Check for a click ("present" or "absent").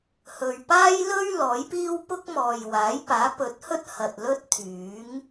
absent